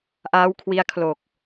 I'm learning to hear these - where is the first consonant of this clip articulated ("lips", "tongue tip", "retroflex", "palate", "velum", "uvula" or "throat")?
throat